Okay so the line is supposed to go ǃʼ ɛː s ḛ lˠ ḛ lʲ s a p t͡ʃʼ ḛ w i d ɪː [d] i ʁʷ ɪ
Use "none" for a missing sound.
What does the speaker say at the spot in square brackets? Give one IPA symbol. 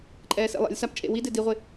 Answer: d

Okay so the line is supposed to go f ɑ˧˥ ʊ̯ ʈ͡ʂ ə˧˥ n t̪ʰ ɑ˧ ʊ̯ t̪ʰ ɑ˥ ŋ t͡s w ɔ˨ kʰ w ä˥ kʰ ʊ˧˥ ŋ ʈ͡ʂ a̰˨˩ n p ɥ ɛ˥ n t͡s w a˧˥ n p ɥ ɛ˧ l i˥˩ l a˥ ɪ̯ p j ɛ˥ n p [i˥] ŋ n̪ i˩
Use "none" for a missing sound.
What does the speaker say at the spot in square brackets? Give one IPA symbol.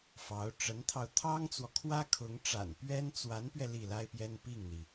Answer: i˥˩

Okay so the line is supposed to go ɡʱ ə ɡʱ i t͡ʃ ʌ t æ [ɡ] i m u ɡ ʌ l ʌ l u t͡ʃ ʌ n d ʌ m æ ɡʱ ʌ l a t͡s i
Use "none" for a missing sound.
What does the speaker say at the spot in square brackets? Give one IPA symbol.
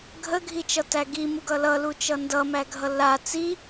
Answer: ɡ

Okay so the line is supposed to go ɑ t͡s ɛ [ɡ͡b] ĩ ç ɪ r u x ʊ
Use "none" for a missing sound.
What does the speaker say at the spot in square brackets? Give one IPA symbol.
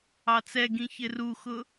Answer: ɡ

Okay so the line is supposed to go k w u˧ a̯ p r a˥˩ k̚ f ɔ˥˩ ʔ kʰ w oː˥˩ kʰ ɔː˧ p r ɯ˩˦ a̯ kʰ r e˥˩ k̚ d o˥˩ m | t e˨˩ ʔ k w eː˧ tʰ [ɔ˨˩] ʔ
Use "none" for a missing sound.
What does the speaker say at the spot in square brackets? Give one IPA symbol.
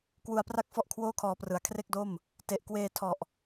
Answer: ɔ˨˩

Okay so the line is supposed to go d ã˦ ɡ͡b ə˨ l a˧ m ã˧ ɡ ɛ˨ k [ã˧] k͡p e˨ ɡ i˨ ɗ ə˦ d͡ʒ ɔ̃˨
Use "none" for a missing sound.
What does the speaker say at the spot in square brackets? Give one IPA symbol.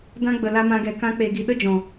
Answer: ã˧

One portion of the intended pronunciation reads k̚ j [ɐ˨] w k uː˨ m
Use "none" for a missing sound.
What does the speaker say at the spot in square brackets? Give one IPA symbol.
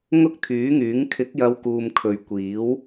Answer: ɐ˨˧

